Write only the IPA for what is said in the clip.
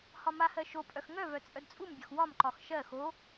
hɒmahɜ ʃopʼœx ŋœvœ t͡sʼœdt͡sʼumbʲɒx wɒmǃɒx ʃɜ xo

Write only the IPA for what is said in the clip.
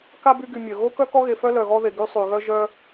ka˥by˦ɡy˨ mʲœ˩ ɣo˥kœ˥ kɔ˥ɣe˨fœ˥ lœ˩ɣɔ˦ðe˩ ɡy˦sˤy˩ɣœ˦ ʒœ˦

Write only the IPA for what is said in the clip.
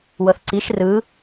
wɤθǀiʃ rɯ

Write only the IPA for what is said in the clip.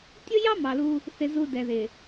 tʲʊ˦jɑ˦ mɑ˨lu˦ | θɪ˦zu˦dɛ˨ ðɪ˨

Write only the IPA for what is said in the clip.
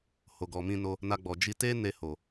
ho˨ɡɔ˨mĩ˧no˧ | na˧ɡ͡bɔ˨ d͡ʒi˧te˦ne˧ho˨

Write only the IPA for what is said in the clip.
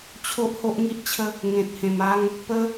t͡ɕʰo˦ʔho˦ʔŋi˦ʔt͡ɕʰə˦ | ŋẽ˨t̚ hẽ˨˩ma˧ŋ | pə˧

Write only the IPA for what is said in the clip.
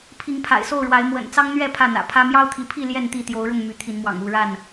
pʰi˨˦ŋpʰa̰˨˩ɪ̯so˥˨ʊ̯ ɻwa˨˦ɪ̯mwə̰˨˩nt͡sɑ˦ŋn̪ɥɛ˥˨ pʰä˥˨n̪ä̰˨˩pʰä˦ mjɑ˦ʊ̯t̪ʰi˨˦pʰi˥˨ ljɛ˥˨nt̪i˥˨t̪jo˨˦ʊ̯ɻʊ˥˨ŋ my˨˦t̪ʰi˨˦nmwɑ̰˨˩ŋ u˥˨ɻa˥˨n

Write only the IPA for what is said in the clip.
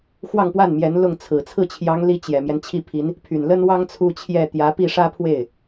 xwɑ˥˧ŋpwa˥˩nmjɛ˧˥n lʊ˥˩ŋt͡sʰɹ̩˨˩ t͡sʰɹ̩˥˩t͡ɕʰjɑ˧˥ŋli˧˥ t͡ɕjɛ˨˩mjɛ˦n t͡ɕʰi˥˩pʰi˧˥n | pʰy˨˩nlə˥nwɑ˥ŋ t͡sʰu˥ t͡ɕʰjɛ˥˩ t̪jä˧˥pi˥˩ ʂä˥pʰwe˥˩ɪ̯

